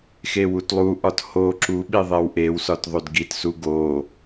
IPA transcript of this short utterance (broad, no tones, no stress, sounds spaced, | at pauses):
x e w u t lˠ u ʔ ɒ t h o ǁ u ɓ i ðˤ e w ʔ e w s ɒ t ðˤ o d ɡ i t s u ɡ o